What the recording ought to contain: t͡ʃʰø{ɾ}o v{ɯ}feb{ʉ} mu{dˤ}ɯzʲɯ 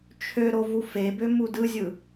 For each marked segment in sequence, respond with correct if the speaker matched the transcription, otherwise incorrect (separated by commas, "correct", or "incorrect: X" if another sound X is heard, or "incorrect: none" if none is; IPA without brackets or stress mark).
correct, incorrect: u, incorrect: ø, incorrect: d